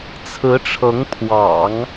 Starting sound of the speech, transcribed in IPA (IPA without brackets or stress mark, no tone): t͡sʰ